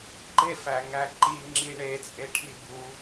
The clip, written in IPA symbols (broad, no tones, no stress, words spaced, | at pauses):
ɡ͡ǃefæŋæ ǃiŋ͡ǁi ɳet͡sʼe ʈʰibu